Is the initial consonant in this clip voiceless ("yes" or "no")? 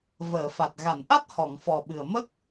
no